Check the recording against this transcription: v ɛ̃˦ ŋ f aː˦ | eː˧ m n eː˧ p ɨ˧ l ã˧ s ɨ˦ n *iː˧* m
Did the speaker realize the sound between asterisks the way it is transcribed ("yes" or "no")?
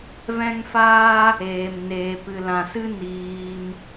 yes